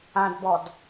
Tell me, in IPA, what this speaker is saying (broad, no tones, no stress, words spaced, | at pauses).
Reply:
ãdbɔd